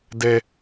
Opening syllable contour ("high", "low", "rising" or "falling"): low